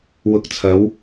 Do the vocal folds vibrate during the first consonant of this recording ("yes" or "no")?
yes